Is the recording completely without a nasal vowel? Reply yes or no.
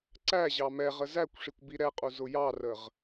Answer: yes